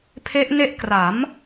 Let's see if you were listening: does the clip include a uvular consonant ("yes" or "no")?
no